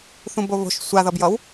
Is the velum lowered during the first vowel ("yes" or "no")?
yes